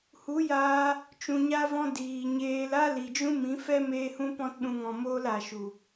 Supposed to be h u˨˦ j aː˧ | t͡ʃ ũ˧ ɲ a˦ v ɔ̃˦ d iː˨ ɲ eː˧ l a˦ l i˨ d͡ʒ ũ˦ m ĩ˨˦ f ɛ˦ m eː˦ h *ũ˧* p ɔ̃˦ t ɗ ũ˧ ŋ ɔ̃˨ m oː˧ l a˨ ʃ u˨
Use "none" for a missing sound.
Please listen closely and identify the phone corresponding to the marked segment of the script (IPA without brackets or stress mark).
ũ˦